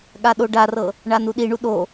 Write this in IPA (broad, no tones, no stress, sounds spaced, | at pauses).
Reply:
ɠ a ɗ o ɖ a r ɤ | ɳ a n u ɗ i ɳ u ɗ o